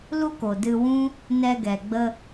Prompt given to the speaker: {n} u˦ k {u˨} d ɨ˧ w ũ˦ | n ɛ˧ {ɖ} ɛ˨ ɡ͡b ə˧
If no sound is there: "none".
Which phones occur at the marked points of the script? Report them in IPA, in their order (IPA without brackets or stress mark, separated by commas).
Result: l, o˨, ɡ